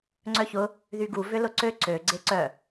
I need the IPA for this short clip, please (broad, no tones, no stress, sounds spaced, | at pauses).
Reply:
ŋ͡ǀ œ ç ʊ | ð y ɡ u v ʏ l ʊ ǀ ø ǀ ø ɡ͡ǀ e ǀ œ